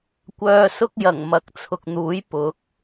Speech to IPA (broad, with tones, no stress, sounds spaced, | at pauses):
kʷ œː˧ s ʊ˥ k̚ j ɐ˨˩ ŋ m ɐ˨ k̚ t͡sʰ ʊ˨ k̚ n̪ uː˨˥ j p ʊ˨˥ k̚